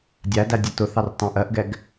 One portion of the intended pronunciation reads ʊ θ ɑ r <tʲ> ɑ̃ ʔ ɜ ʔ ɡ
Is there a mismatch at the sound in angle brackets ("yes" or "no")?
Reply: yes